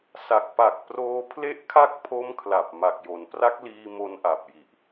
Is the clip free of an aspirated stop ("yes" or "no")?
no